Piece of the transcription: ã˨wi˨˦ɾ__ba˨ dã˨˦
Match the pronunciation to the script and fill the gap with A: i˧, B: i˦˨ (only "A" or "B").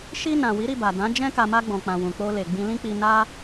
B